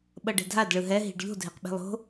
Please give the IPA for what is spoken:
ɓʌɖɛ̤dʱad ɭɯɦɛ ɦi̤ɖʎo̤ dʱeqɓe̤lˠo̤

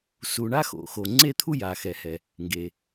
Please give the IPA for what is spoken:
su˩ɳa˥˧ xo̰˩xo˩ ŋ͡ǀe˥˧t̪ʰu˥˧ja˩ xɛ˩hɛ˩ | ŋɡe˩

